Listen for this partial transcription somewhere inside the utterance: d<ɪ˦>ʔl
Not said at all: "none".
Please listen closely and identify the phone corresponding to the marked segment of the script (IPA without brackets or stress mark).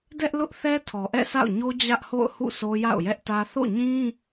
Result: ɛ˦